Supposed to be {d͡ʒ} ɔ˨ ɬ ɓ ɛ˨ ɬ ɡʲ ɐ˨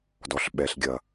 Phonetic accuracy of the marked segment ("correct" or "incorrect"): incorrect